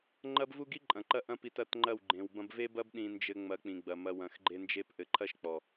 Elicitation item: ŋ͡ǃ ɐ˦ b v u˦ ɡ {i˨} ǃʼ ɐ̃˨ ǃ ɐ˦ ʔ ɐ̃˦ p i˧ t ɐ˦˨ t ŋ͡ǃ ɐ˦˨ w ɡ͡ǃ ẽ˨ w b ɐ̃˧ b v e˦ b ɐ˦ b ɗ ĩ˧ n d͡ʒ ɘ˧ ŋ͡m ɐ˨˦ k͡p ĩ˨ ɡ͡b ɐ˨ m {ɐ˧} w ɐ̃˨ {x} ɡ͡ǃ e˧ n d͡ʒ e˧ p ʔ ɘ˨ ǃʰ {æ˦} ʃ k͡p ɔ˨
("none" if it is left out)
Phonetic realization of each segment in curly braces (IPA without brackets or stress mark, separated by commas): i˦, ɐ˧, x, ɐ˦